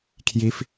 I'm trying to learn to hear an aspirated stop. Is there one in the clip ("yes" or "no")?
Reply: yes